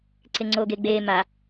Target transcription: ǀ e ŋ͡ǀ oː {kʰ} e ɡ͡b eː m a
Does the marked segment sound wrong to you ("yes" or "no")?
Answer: yes